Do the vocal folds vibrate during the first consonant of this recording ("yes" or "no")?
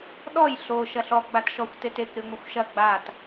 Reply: yes